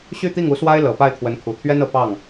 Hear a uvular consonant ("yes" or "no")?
no